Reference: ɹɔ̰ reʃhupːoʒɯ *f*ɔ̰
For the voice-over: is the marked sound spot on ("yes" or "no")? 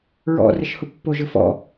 yes